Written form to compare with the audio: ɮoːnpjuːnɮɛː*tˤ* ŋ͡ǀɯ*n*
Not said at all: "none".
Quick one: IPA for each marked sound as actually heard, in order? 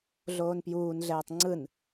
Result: tˤ, n

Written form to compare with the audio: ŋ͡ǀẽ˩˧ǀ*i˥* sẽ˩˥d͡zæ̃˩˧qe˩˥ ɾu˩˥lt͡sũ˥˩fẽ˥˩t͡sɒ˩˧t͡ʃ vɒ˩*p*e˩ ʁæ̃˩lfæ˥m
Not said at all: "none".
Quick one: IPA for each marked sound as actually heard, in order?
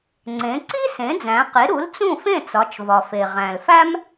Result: i˥, f

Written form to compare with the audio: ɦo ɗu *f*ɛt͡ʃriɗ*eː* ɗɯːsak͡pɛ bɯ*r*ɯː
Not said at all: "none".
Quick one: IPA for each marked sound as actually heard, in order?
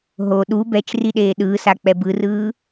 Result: b, eː, r

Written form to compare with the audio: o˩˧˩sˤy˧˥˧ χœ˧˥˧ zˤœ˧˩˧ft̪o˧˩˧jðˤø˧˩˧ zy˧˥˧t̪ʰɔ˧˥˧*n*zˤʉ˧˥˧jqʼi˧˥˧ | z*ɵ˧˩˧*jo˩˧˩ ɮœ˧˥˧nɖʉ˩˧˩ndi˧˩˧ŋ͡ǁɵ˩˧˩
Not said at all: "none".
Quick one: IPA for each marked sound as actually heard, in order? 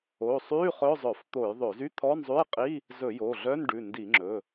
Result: n, ɵ˧˩˧

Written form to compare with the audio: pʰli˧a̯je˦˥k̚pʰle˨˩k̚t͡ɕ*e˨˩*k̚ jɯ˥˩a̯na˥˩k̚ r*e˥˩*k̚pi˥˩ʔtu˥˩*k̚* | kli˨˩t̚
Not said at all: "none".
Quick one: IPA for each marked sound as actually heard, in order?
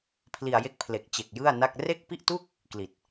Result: e˨˩, e˥˩, k̚

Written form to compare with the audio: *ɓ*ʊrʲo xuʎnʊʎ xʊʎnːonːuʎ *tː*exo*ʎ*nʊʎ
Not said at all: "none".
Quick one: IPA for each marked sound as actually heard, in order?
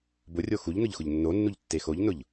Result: b, tː, ʎ

